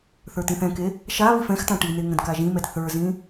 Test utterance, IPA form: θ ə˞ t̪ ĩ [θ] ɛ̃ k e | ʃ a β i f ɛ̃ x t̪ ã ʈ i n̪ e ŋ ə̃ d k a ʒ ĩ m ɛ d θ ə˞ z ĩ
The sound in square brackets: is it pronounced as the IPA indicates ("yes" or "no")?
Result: yes